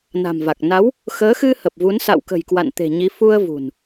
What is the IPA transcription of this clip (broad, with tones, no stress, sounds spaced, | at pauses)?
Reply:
n a̤˨˩ m v a˨˩ k̚ n a˨˦ w | x əː˨˦ x ɨ˧ h ə˨˩ p̚ v u˨˦ n s a̰˧˨ w k ə̤˨˩ j k w a̰˧˨ n t̪ e̤˨˩ ɲ i˨˦ f u˧ ə̯ v ṳ˨˩ n